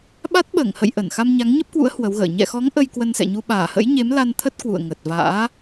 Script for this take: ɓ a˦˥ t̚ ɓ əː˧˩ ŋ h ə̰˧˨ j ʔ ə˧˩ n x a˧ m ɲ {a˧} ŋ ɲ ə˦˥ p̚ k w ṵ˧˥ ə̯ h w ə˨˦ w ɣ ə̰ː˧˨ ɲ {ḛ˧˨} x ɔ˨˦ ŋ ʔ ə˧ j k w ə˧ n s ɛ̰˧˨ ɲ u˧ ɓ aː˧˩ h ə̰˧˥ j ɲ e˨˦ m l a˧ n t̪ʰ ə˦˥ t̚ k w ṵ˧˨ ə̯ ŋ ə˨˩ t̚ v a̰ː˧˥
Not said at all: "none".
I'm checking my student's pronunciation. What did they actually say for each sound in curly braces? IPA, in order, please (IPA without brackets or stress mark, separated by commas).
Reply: a˨˦, ɛ̰˧˨